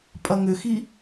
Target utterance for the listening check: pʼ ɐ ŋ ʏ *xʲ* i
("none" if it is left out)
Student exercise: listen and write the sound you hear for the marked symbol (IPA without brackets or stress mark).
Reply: x